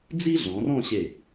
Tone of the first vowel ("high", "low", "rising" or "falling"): high